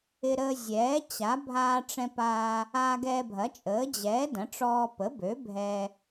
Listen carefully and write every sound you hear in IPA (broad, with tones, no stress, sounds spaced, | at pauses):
ɪ˧ ɾ əː˧ zʲ ɛː˩˥ t͡ɕ a˩˥ bʱ aː˧ ʈ͡ʂ ɛ̃˧ p a˧ | aː˧ ɡ ɛː˧ bʱ ɐ˩˥ t͡ʃʼ əː˩˥ d͡ʑ ɛː˩˥ d ɐ̃˩˥ ʈ͡ʂ ɔː˧ p ə˩˥ b ø˩˥ bʱ ɛ˧